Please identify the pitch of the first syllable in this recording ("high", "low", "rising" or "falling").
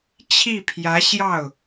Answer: falling